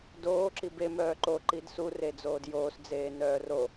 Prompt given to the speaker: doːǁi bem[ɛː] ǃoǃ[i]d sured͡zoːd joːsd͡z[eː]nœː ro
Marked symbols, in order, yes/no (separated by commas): no, yes, yes